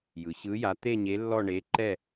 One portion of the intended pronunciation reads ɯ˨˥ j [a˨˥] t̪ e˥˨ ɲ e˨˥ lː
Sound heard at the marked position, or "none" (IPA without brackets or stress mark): a˨˥